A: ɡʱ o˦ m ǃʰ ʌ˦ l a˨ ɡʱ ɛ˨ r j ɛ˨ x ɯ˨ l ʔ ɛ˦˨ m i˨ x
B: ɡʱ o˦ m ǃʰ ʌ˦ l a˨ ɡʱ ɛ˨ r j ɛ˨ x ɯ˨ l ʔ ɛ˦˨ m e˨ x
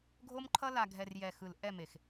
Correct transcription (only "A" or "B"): B